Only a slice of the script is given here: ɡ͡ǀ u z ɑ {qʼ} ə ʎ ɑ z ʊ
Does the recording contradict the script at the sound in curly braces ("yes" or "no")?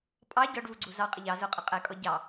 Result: no